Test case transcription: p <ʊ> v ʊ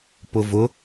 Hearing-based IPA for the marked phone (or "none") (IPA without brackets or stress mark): ʊ